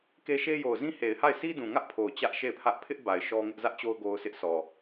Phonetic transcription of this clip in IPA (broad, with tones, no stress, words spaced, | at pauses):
ke˦ʃe˦ jo˨ʊ̯zĩ˦he˨ɪ̯ha˦˨ɪ̯ sʰi˦dũ˨ŋä˦ʔ pʰo˨ʊ̯ t͡ɕä˦ʔʃe˦˨ɪ̯pʰä˦ʔ pʰɪ˦ʔba˨ɪ̯ ʃɔ˦ŋɪ˦ʔ zä˦ʔt͡ɕo˦ʊ̯ ɡo˦ʊ̯sʰɪ˦ʔ sʰɔ˨